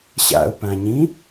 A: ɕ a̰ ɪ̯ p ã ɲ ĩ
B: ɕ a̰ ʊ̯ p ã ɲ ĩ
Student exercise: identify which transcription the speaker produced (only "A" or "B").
B